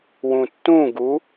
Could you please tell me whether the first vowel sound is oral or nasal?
nasal